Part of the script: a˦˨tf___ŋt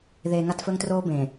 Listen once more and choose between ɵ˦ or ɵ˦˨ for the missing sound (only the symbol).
ɵ˦